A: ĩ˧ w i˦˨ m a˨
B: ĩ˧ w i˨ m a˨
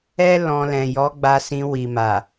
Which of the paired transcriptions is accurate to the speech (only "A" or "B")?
B